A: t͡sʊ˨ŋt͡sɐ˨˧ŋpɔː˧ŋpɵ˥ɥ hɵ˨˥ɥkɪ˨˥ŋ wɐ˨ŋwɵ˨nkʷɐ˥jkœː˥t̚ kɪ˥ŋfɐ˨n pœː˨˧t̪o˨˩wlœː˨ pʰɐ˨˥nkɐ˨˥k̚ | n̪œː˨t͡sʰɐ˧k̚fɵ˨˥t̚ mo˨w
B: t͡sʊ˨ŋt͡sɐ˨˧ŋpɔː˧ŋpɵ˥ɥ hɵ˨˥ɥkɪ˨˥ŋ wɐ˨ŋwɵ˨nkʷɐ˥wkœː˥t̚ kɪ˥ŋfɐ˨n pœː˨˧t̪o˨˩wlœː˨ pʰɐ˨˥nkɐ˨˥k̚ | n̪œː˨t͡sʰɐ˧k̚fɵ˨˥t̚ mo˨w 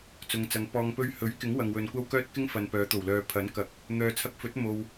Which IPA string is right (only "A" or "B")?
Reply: B